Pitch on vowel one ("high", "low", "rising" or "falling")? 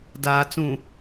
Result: low